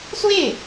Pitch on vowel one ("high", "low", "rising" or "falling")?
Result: falling